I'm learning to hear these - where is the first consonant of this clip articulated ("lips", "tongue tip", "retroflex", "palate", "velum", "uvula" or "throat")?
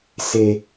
tongue tip